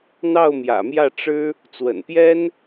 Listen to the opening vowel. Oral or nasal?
oral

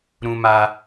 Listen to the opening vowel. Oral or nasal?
nasal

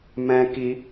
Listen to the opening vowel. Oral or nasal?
nasal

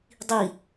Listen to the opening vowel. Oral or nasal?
oral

